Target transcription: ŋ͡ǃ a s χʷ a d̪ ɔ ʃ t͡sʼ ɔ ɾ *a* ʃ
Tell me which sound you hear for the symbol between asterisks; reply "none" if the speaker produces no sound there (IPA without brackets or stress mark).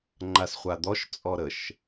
ə